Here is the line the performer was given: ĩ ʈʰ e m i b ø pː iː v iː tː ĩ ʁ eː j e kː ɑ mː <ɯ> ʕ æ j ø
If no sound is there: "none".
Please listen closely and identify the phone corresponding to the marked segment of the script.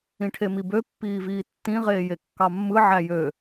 ɯ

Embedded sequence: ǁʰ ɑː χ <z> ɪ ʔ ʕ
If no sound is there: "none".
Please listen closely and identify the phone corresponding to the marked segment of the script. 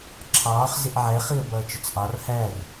z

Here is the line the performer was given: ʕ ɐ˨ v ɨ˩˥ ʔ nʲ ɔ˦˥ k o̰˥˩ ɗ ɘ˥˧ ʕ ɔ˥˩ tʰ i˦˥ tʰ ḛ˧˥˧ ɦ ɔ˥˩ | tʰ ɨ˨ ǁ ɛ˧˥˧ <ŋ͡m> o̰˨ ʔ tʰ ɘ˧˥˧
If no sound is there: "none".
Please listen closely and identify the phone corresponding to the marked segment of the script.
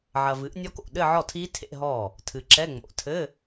ŋ͡m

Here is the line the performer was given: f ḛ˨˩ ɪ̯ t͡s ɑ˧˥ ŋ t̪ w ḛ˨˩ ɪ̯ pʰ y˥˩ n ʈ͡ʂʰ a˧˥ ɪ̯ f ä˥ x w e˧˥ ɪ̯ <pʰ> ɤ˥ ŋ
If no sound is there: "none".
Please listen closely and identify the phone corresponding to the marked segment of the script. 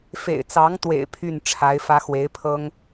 pʰ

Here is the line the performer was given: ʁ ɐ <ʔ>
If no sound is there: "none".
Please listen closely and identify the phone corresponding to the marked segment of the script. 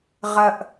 ʔ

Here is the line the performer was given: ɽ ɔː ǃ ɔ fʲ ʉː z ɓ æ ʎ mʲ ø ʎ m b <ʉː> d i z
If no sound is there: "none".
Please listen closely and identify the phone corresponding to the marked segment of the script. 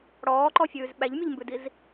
ʉ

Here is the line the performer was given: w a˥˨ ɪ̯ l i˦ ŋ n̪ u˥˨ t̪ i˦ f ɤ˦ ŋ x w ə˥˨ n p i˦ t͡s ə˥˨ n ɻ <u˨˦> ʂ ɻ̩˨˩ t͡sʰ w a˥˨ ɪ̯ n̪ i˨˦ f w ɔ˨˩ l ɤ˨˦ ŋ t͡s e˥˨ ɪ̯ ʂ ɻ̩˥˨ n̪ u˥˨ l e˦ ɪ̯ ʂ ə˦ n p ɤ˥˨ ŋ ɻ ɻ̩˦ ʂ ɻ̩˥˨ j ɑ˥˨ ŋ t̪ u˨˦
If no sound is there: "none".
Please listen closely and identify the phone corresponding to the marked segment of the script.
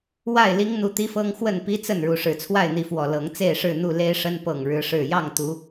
u˨˦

